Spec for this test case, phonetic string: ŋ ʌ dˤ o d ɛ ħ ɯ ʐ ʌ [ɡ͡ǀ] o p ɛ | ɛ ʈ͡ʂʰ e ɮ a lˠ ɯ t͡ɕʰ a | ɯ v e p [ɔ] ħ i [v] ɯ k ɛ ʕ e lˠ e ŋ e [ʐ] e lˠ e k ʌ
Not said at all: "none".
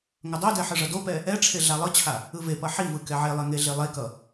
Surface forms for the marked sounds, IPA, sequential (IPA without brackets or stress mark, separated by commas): d, ʌ, v, ɮ